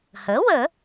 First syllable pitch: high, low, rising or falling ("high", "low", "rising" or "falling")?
rising